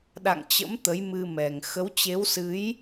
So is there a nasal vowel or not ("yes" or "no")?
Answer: no